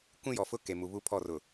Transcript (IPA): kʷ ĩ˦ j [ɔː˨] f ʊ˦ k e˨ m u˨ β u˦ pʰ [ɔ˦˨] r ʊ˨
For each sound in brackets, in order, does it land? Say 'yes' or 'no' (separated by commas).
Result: no, yes